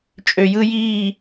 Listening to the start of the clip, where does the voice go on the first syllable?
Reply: low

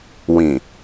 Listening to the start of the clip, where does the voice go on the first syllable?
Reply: low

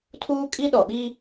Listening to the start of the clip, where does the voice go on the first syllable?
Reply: high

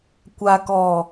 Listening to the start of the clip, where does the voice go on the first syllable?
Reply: low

